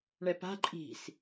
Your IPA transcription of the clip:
ɳ ɛ p a̤ ǃʼ i̤ s

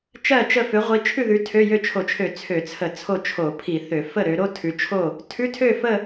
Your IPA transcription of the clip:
t͡ʃ ɜ˥˨ t͡ʃ ə˥˨ f ø˨˦ ʁʷ i˨˦ t͡ʃʰ ʉ˥˨ ð ʉ˨˦ tʰ ø˧˥˧ j ø˥˨ t͡ʃʰ o˧˩˧ t͡ʃʰ ø˧˩˧ t͡sʰ ø˧˩˧ t͡sʰ ə˧˩˧ t͡sʰ o˥˨ t͡ʃʰ o˧˩˧ pʰ i˧˩˧ θ ø˧˩˧ f ə˥˨ ɾ ø˨˦ ɾ o˧˥˧ tʰ ʉ˨˦ t͡ʃʰ o˥˨ | tʰ ʉ˧˥˧ tʰ ø˥˨ f ə˥˨

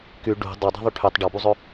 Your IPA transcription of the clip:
k y ɖ ṳ dˤ o dˤ ɛ̤ ðˤ y ʈʰ y tˤ ɖ ɔ b u zˤ ɵ

